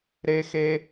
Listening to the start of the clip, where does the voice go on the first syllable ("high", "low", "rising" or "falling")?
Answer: low